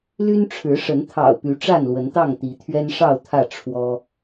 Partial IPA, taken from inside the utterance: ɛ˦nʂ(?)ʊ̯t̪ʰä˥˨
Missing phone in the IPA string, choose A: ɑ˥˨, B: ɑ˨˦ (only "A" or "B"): A